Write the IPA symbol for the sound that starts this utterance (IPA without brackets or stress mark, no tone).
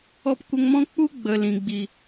ɔ